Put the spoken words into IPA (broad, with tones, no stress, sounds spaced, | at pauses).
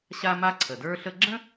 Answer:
ɕ a˥ m a˥ ǀʰ ə˩ d ə˞˥ ɬ ə˥ ɡ͡ǁ ə̃˥